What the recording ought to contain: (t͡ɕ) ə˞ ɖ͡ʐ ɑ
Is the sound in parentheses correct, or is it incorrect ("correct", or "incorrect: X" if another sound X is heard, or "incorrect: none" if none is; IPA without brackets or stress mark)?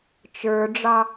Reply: incorrect: t͡ʃ